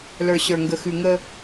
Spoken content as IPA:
l ə˞˨ ɕ ə˞˨ ŋ ɡ ə˨ x ʉ˨ ŋ ə˦

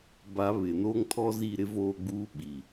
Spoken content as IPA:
b a˨˦ β ɪ˨ n oː˦ ŋ tʰ ɔ˦ z i˦˨ ɾ ɪ˦ v oː˦ ɡ͡b uː˦ ɓ i˨

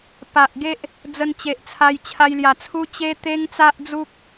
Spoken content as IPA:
p a˨ ʔ ɡ e˦ ʔ | d͡z ə˧ n t͡ɕ e˨ ʔ t͡sʰ a˧ j t͡ɕʰ a˧ j l j a˨˩ t͡sʰ u˦ t͡ɕ e˦ t̪ e˦ ŋ t͡s a˦ ʔ d͡z u˦ k̚

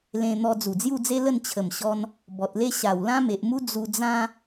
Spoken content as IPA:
l ẽ˧ n̪ ɔ˧ d͡z u˨˩ d͡z j u˥˧ d͡z e˦ l ə˥˧ n t͡ɕʰ ə˨˩ m ɕ ɔ˧ n | b ɔ˨ t̚ l e˦ ɕ a˨˩ w l ã˦ m e˨ ʔ m u˦ d͡z u˧ d͡z ã˦

